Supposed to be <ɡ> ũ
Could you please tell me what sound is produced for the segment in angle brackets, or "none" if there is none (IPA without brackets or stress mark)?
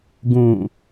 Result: ɡ